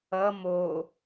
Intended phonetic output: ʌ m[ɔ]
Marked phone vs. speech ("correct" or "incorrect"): incorrect